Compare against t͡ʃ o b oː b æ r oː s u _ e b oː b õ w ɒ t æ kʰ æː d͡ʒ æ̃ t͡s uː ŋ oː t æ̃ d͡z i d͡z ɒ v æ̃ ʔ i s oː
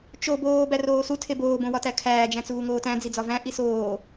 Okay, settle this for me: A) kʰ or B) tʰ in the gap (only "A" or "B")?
B